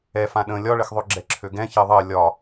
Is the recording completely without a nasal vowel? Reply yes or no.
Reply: no